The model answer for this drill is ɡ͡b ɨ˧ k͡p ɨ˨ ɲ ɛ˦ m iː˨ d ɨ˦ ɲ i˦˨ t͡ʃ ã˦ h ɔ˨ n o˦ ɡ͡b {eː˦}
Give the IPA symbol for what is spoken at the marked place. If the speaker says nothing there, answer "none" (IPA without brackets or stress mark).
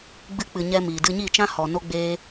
eː˦